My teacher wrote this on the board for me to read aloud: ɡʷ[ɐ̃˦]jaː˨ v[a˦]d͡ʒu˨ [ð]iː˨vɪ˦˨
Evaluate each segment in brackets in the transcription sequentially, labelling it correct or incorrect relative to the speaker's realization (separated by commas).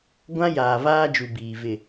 incorrect, incorrect, incorrect